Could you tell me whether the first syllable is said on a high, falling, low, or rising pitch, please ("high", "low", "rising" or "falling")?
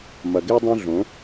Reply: low